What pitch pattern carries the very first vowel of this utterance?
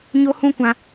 high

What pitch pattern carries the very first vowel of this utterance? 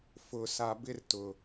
low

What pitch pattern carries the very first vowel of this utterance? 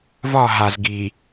falling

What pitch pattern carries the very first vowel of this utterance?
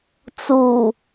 low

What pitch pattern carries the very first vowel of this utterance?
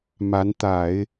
rising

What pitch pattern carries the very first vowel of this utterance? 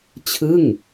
falling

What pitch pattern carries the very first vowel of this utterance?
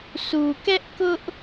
low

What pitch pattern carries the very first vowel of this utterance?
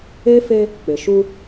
high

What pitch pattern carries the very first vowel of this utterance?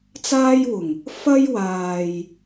high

